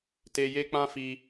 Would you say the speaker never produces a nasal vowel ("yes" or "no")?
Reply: no